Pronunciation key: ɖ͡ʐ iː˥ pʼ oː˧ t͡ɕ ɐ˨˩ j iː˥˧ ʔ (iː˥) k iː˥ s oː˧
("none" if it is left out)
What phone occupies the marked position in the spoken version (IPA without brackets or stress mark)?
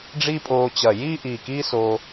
iː˨˩